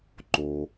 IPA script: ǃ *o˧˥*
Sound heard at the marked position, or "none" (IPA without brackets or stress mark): o˩